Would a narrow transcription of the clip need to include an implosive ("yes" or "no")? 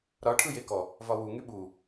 yes